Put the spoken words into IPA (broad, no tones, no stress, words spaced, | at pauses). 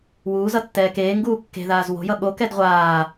wuːzʌ tːɛːkeːŋɡuː kːe̤ðaːz wo̤jʌ ɠokɛd ʁʷaː